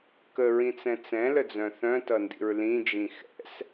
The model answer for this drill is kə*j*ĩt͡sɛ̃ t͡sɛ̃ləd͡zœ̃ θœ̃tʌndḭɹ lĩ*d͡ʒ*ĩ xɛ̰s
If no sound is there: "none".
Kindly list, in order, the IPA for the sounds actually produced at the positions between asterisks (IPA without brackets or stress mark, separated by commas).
ɹ, d͡ʒ